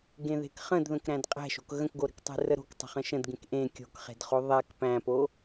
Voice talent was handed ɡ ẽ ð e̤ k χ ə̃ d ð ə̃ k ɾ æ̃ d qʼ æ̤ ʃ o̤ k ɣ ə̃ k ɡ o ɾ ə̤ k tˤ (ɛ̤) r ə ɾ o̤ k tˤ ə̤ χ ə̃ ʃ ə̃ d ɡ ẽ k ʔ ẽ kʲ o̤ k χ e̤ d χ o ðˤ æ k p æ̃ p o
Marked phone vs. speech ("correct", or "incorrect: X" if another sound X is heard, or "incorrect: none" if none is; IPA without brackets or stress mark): incorrect: e̤